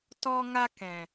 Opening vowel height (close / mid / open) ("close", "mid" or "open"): mid